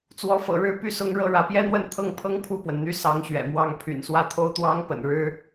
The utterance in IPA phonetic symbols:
t͡swɔ˧˥fɤ̰˨˩ɻɻ̩˥˧py˥˩ sʊ˥ŋɻɤ˥˩ɻä˧˥ pjɛ˥n̪wə˥˧nt̪ʰɤ˥˩ŋpʰɤ˥ŋ pʰu˥˩pwə˩n n̪y˧˥ sɑ˧˥ŋɕɥɛ̰˨˩mwɑ˥˩ŋ pʰy̰˨˩nswä˥˩ t̪ʰo˥ʊ̯t̪wɑ˥ŋpə̰˨˩n ɻɻ̩˥

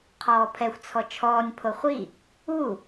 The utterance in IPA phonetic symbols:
qʰɔːpʰɛxʷ t͡sʰɔt͡ʃʰɔːnʲ pʰoχʷi | u

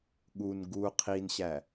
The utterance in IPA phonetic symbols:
ɠun ɡu qʰinɕæ

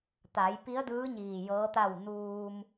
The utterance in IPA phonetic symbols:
t̪a˩˧jpi˧˥ə̯ dɯː˧˥ ɲiː˧˩jɤː˧˥t̪a˥˨w nuː˧m

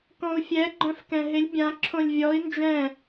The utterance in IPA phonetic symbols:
kɔ̃u̯fʲɛ ɡ͡ǃœ̃fkɛ̃ɦɪlʲ bʲã ǁʰõlʲvʲɔi̯ nd͡ʒɛ̃

